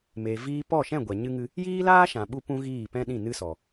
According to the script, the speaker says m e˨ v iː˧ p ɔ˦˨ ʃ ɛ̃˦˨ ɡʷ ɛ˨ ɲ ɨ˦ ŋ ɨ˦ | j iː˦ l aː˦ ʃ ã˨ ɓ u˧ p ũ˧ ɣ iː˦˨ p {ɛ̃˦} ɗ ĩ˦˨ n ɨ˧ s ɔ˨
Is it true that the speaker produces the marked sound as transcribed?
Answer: yes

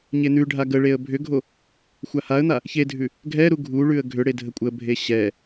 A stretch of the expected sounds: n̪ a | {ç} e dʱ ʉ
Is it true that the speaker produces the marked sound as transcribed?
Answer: yes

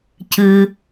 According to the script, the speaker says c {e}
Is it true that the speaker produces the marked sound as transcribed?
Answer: no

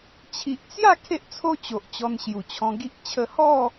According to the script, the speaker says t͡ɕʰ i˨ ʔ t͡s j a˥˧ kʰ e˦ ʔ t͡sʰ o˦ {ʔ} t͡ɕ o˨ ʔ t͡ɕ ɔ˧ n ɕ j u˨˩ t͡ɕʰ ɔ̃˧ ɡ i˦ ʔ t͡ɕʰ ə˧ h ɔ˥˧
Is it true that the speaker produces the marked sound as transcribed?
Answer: no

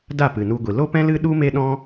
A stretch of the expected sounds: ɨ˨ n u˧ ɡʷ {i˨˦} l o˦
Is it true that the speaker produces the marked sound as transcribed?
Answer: no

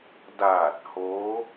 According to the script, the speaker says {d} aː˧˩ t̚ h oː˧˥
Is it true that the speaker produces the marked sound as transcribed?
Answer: yes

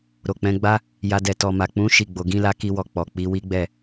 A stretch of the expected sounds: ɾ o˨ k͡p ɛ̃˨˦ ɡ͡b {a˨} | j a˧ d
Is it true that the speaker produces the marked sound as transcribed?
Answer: no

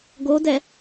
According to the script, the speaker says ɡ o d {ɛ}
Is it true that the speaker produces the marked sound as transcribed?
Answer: yes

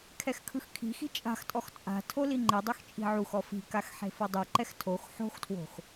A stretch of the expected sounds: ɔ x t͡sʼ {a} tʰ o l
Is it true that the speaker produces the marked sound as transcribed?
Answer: no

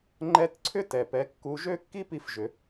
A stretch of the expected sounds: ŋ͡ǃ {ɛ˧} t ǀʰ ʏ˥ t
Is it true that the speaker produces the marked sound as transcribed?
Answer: no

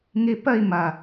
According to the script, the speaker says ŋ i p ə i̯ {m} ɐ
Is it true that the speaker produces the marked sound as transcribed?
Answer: yes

